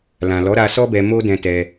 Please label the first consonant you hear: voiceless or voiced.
voiced